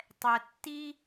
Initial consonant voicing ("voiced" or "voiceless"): voiceless